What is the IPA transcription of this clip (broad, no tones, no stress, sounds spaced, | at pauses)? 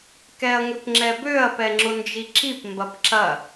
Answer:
k ɛ ɐ̯ ŋ ʏ p ŋ͡ǁ ɛ b ø ɐ̯ p ɛ ŋ͡ǁ ʊ n d͡ʒ i ǁ i p m b ɐ p ǁ ɐ